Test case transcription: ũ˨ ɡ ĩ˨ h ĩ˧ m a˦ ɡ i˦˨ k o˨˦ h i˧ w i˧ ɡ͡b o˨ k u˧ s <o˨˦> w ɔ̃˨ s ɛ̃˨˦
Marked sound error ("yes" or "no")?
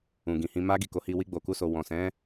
yes